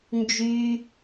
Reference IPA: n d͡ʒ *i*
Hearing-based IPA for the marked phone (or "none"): y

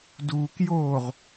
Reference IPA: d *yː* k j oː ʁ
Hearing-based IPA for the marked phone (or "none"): uː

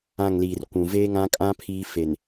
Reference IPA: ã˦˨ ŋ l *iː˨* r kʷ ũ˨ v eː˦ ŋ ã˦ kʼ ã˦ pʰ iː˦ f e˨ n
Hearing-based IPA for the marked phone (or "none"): iː˨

